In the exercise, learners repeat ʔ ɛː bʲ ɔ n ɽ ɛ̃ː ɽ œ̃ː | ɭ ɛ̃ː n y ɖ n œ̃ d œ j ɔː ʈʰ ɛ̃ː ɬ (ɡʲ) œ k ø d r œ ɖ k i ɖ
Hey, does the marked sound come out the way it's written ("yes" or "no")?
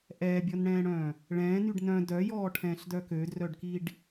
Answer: no